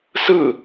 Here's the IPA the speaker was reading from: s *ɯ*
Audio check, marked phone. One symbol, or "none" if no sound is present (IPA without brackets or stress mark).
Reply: ɯ